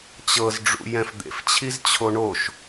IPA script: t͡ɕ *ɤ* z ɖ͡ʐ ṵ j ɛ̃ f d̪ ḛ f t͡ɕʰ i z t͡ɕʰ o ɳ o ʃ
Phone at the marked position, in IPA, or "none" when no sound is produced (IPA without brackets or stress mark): ɤ